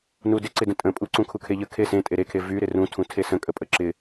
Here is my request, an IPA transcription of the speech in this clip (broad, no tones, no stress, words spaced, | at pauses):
nudɪǀɪ də̃tʼə̃pʼu ǀũkʰukʰeʎə kʰesẽ tʼeɾekʰe vy ɾɪrũtʰũ tʰesə̃kʼəpʼə ǁɪ